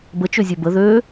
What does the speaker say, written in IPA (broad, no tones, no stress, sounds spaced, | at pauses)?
b ə t͡ʃ ø zʲ ɛ b ə ð ø